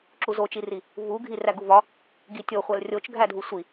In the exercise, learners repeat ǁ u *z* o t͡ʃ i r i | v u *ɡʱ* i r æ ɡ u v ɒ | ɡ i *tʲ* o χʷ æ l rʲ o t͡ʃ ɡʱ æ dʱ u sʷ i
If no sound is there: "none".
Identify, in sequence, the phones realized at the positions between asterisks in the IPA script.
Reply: z, ɡʱ, tʲ

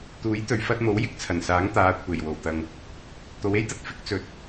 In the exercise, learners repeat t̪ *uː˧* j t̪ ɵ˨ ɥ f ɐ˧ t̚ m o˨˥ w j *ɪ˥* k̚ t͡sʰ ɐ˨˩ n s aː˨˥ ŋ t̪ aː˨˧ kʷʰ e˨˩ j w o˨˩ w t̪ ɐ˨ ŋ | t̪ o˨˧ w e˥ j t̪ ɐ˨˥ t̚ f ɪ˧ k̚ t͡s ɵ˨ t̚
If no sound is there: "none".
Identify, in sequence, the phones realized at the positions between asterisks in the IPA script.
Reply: uː˨˥, ɪ˥

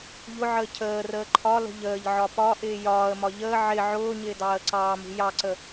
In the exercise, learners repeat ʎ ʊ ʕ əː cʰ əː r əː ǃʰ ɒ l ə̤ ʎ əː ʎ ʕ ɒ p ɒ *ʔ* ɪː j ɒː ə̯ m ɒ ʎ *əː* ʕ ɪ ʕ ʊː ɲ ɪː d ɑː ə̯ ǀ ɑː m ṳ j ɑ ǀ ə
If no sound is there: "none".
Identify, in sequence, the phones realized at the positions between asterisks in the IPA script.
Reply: ʔ, əː

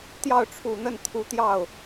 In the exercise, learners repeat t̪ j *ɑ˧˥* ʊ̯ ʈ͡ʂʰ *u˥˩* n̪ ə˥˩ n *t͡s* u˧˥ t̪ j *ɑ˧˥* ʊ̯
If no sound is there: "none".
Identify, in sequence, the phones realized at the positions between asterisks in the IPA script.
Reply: ɑ˥˩, u˨˩, t̪ʰ, ɑ˥˩

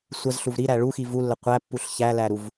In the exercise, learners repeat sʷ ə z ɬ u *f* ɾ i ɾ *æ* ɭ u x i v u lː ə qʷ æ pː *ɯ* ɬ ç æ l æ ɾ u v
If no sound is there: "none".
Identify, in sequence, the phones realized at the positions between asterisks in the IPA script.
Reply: v, æ, u

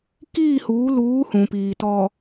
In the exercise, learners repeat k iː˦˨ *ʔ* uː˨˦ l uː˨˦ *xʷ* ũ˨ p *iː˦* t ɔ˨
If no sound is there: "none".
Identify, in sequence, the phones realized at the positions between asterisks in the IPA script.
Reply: h, h, iː˨

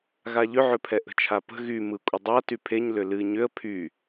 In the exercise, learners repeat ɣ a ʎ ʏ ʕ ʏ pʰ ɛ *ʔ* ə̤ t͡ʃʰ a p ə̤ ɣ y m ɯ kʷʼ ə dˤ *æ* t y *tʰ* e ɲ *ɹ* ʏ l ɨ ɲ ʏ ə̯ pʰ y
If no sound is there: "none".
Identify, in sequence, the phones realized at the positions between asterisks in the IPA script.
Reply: ʔ, a, pʰ, l

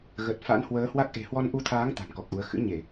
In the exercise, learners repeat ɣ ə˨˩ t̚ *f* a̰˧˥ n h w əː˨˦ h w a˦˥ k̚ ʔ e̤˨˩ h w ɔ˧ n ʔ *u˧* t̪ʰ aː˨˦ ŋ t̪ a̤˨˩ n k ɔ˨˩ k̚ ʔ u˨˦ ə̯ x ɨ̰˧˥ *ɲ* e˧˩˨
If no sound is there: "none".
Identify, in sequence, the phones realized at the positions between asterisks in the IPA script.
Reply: f, u˧, ɲ

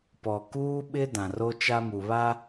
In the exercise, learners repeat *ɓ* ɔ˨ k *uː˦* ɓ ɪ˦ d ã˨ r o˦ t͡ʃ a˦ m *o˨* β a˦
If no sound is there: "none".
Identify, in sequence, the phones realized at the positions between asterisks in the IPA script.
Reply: p, uː˦, u˨

